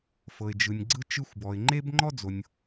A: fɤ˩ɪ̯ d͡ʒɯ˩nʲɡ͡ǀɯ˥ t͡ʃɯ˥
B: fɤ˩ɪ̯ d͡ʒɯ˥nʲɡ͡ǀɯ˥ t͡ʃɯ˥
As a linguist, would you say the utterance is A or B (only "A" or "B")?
A